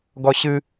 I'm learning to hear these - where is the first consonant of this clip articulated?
velum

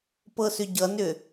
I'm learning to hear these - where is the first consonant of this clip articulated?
lips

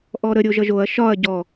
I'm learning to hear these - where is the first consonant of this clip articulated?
throat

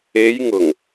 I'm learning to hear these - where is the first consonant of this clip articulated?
palate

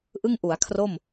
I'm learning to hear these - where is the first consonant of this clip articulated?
throat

